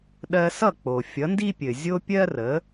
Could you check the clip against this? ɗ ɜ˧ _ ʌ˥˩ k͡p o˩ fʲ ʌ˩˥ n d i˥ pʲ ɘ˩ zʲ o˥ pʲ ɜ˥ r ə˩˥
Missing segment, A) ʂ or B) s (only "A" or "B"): B